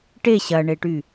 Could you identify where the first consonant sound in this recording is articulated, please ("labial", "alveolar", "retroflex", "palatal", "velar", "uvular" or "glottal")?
retroflex